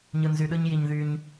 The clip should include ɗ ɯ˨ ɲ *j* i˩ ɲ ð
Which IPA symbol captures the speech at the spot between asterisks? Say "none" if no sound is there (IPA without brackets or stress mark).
j